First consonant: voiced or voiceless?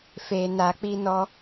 voiceless